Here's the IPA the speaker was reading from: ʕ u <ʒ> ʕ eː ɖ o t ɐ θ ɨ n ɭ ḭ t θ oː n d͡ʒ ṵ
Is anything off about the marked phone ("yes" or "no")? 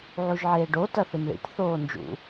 no